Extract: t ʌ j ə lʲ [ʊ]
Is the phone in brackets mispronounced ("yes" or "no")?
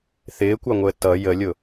no